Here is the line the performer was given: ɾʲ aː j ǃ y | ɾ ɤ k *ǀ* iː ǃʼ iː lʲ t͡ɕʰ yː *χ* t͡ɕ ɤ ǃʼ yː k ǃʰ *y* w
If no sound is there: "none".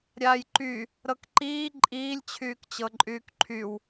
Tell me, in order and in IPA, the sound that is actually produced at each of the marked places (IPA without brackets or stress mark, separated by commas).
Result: ǃ, k, y